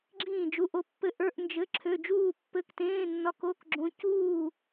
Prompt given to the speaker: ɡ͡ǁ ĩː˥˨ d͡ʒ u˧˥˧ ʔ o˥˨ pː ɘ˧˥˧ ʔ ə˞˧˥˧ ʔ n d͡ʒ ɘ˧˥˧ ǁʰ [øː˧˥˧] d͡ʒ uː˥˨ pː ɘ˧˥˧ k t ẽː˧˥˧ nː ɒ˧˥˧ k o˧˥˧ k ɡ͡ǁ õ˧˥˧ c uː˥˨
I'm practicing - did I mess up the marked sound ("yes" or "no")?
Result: yes